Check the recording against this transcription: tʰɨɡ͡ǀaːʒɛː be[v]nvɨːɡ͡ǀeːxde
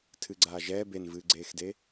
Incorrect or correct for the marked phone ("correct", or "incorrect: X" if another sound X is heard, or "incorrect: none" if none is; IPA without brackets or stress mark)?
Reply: incorrect: none